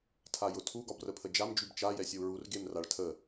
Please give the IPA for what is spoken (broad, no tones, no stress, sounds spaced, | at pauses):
tʰ a j ʊ tʰ u ɡ ɒ b r ə pʰ ə d͡ʒ a m d͡ʒ y b t͡ʃ a j ɛ sʲ ə u̯ ɹ u r ɡ e m r a ɭ tʰ ə